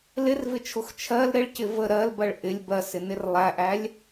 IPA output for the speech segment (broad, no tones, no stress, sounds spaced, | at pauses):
l ɪ r v ɪ t͡ʃʰ ʊ x t͡ʃʰ ɜ l ɾ ɪ ɭ c ɪ v ə ɾ ɜ l b ɜ ɭ ʔ ɪ lʲ b ɜ s ɪ n ɪ r lˠ æ ʔ æ lʲ